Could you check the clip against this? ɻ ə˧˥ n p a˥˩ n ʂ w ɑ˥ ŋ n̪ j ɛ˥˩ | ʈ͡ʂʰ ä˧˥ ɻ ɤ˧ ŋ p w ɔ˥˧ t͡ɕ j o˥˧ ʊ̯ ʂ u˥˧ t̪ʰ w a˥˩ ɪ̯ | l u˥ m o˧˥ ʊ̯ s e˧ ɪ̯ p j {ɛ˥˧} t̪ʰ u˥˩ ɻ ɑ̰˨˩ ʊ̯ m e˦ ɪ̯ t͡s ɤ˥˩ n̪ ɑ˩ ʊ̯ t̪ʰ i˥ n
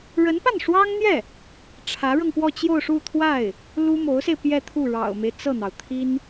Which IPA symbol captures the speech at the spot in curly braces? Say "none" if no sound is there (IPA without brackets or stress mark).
ɛ˥˧